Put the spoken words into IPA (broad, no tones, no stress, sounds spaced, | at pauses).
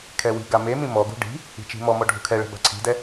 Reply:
kʰ ɛ w i̤ ɡ a m e m ĩ m ɔ ɡ ṳ ɖ i̤ | i̤ t͡ʃ i̤ m ɔ m ɔ ɖʱ ṳ kʰ ɛ ɭ ɛ̤ b a̤ ǀʰ i̤ d ɛ